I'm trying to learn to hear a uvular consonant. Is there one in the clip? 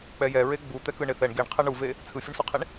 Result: yes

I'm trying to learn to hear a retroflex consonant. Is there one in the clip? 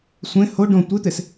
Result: yes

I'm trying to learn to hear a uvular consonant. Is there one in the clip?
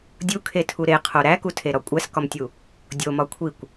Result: yes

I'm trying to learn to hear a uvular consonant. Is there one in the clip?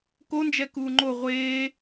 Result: yes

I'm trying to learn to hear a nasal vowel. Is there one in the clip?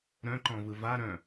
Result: yes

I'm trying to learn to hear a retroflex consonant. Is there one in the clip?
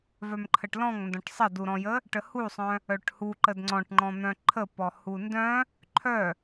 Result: yes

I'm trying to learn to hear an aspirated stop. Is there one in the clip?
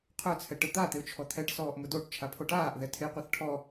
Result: yes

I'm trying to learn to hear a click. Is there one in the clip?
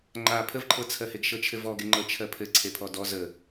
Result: yes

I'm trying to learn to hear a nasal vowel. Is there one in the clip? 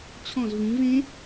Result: yes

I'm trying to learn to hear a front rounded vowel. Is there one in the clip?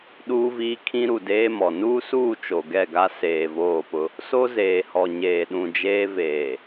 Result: no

